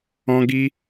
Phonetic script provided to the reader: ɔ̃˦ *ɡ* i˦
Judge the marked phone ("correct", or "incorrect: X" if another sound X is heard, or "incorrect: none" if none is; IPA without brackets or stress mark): correct